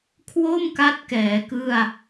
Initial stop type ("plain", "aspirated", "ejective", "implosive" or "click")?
aspirated